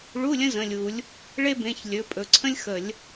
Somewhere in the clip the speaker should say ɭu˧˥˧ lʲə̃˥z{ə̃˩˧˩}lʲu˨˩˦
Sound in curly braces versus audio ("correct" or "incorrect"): correct